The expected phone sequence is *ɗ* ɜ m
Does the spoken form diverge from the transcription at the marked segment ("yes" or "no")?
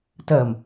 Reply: yes